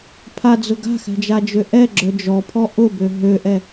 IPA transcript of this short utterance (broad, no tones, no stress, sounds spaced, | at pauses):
pʰ a d͡z ʊ ɡ a̤ x ɛ̤ d͡ʒ a d͡ʒ ø ʔ ɛ ɡ͡ǁ œ d͡ʒ ɔ pʰ ɔ ʔ ʊ b ø ɦ ø ʔ ɛ